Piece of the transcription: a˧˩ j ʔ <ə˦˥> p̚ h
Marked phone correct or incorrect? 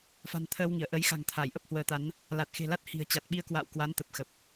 correct